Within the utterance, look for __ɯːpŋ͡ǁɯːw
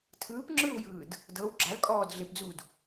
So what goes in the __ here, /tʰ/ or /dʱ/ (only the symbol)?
tʰ